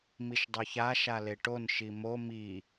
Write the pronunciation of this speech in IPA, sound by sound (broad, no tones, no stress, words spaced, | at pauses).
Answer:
miʃdˤoça ʃaleʈon ʃimo mi